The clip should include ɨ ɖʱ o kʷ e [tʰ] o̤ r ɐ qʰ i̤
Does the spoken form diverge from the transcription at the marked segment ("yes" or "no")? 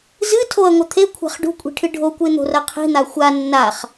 yes